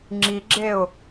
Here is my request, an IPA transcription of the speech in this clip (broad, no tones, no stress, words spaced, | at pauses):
ŋ͡ǁiɡ͡ǁeʊ̯